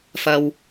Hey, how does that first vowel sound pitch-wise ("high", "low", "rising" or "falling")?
high